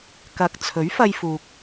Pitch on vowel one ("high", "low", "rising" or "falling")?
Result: low